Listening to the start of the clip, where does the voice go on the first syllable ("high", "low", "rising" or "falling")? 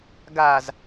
low